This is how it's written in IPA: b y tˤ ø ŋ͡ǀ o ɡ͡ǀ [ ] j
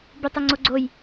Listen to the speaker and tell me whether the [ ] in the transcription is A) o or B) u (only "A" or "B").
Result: A